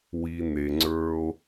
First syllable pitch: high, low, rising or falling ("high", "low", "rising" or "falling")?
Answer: low